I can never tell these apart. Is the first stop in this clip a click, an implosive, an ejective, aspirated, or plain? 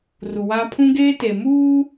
aspirated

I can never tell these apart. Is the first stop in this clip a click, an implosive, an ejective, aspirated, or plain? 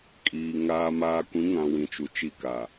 ejective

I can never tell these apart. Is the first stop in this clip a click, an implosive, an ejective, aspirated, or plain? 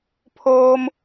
aspirated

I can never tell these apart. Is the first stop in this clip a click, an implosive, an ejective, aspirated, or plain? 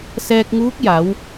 plain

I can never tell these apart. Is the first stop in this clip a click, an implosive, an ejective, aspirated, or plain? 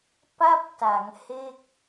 plain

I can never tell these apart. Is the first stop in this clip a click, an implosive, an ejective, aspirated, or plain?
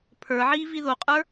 aspirated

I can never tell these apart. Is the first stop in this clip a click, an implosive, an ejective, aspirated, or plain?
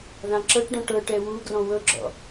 click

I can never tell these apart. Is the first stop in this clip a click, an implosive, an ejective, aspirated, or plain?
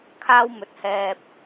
aspirated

